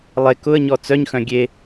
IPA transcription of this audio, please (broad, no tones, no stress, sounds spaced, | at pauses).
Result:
lˠ e k ʊ ə̯ ɲ ɔ t͡s œ ɲ x œ̃ ɡʲ e